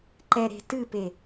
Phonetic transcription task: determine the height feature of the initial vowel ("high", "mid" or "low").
mid